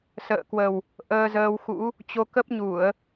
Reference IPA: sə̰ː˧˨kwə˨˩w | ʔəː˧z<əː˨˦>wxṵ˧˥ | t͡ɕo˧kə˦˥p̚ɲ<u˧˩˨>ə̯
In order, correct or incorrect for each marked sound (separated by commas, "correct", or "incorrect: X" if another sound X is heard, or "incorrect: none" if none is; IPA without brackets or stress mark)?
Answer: incorrect: əː˧, correct